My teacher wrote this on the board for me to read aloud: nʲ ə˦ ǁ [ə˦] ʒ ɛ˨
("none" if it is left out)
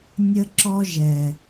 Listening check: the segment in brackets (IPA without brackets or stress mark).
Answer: ɔ˦